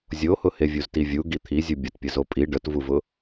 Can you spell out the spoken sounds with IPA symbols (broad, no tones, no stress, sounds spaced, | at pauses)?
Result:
zʲ o h ʊ h e vʲ u z t i vʲ u ɡ i t̪ʰ i zʲ u bʲ ʊ t pʲ ə z o pʼ i ɖ ə t v u v ʊ